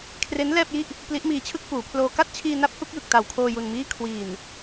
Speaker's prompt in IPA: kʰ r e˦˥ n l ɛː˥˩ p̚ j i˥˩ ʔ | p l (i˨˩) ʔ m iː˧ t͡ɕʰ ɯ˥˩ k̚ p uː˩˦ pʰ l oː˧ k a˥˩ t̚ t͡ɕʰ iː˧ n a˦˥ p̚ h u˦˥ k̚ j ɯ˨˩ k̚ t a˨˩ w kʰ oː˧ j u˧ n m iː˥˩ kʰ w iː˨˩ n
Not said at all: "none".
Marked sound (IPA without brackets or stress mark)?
i˦˥